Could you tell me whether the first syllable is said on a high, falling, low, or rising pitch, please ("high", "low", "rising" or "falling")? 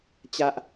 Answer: low